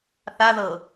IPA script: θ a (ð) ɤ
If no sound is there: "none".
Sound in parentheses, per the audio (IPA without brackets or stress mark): ð